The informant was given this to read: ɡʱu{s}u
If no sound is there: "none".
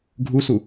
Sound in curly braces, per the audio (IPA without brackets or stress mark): s